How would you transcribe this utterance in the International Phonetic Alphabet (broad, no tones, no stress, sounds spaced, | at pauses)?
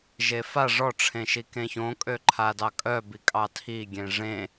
ʒ e f a ʐ ɔ ʈ͡ʂʰ ẽ ʃ i k ẽ ç õ kʼ ø ǃʰ a d ɑ kʼ œ b i kʼ ɑ tʰ i ɡʲ ẽ ʐ ẽ